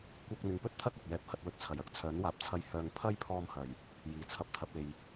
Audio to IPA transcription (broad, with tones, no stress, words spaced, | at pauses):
kʷɐ˧k̚n̪ɪ˨˧ŋpɵ˥t̚t̪ʰɐ˥t̚ ɐ˨p̚jɛː˧p̚ hɐ˧t̚wɵ˧t̚t͡sʰɐ˨˩j ɐ˨˥k̚t͡sʰœː˨˥nwaː˨p̚t͡sʰɐ˧j hœː˨ŋpʰɐ˥jpʰɔː˧mhɐ˨˩j | jiː˨˩ t͡sʰɐ˨p̚t̪ʰɐ˨p̚ e˨j